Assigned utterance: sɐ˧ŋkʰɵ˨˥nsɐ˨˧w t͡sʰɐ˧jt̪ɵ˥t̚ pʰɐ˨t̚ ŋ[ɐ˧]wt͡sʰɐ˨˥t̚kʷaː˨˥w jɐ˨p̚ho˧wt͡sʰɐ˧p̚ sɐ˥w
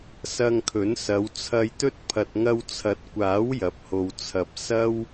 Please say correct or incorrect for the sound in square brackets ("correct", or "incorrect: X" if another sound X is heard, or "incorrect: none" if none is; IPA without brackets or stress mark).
correct